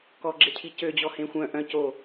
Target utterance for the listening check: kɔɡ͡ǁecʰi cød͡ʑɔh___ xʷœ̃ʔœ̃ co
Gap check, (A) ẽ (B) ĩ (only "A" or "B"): A